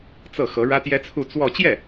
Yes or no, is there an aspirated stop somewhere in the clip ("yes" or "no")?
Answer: yes